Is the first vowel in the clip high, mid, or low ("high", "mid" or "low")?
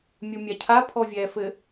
high